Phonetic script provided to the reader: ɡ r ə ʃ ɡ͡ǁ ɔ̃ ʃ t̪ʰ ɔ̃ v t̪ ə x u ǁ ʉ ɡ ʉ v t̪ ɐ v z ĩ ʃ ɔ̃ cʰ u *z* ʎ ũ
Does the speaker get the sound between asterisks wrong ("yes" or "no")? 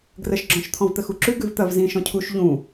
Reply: yes